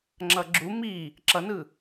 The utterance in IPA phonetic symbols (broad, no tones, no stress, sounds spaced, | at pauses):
ŋ͡ǁ ʌ ɡ͡ǁ u m i | ǁ ʌ n ɯ